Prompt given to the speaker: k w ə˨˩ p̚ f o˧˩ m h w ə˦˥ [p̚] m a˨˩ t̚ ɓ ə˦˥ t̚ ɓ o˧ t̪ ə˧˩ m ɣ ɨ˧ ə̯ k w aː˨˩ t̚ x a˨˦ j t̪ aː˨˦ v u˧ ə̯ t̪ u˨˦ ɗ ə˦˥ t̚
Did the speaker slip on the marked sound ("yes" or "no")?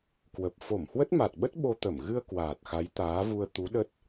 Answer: yes